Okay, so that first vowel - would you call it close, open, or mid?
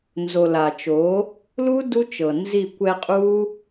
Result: mid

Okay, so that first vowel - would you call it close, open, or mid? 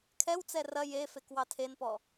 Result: mid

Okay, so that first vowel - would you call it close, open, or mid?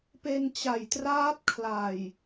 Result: mid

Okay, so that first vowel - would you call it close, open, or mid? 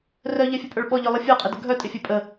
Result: mid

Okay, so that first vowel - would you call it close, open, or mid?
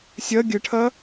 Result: open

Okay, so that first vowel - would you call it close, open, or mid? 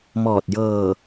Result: mid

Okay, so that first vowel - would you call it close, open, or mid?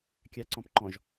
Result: open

